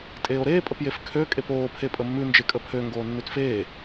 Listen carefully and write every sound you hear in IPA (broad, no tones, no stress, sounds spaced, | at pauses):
tʼ eː o̯ ɾ eː pʼ ə p j e f kʰ ø kʼ e p oː pʰ e pʼ ə mː ʉ n d͡ʒ e kʼ ə pʰ ø ŋ ɡ oː nː ʉ t f eː